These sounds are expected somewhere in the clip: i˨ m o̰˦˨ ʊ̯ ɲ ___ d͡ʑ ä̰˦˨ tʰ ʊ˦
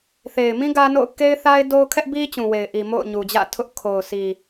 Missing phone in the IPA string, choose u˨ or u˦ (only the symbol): u˨